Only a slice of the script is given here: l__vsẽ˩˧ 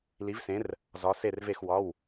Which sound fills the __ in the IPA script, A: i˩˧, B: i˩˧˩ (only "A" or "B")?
A